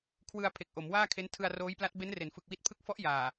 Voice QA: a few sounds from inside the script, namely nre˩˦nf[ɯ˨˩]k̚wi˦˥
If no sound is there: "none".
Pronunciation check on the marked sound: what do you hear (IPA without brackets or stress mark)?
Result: ɯ˨˩